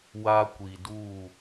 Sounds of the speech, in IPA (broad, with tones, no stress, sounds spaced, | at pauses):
w a˦ kʷ i˨ d uː˦˨